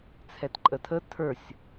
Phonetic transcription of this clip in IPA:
t͡sʰɛtǃʼətʰə tʰə˞sʲ

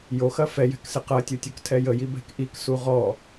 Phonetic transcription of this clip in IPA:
joxɐ fɛ jɛ̤ksɪqɐtʲu tʲuktʰɛjəji bɛ̤kʔiksu ʁɔ

